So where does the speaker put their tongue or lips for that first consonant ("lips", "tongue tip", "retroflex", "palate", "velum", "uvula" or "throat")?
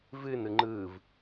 lips